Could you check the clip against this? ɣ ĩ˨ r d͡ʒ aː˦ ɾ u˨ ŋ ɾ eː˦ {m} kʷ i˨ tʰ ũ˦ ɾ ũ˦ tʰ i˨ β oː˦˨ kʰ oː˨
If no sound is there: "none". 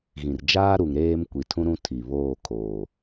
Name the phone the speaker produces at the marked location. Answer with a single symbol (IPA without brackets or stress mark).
m